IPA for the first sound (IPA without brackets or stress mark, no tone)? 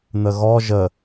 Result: n